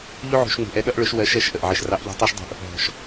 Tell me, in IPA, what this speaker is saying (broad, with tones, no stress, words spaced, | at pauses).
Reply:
ʎu˥ʕṳ˧ʃŋ͡mṳ˩˧ʔ ɛ˧˥ɗʌ˥ʔɭʊ˧˥ʃwɜ˧˥ʃ ɜ˩˧ʃʔə˩ʔ ʕɪ˧ʃ rɑ˧˥ʔʎɔ̤˧˥tˤɜ˥ʃdˤṳ˧ʔ | ɦɔ̤˩ʃ